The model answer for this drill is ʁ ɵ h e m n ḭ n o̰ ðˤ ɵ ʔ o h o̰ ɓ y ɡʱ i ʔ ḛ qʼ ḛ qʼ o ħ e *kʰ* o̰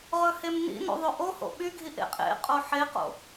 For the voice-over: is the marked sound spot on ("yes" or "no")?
no